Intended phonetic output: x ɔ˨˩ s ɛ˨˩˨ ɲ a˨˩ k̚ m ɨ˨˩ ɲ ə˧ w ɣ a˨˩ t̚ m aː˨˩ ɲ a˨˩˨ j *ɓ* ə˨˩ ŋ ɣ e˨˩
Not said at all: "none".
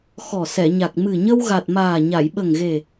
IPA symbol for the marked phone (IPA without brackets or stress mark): ɓ